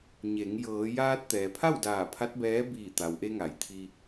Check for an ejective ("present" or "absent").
absent